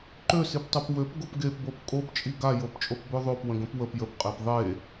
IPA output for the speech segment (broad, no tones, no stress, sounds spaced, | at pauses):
ǃ ø s i p tˤ o p w ø p ɡ o p ɡ e p b o p kʼ o p t͡ʃʼ i ɡ a j o p t͡ʃʼ o p b ø ðˤ o p w ə̃ ɡ ə̃ p w ə p j ə p qʼ e p ðˤ e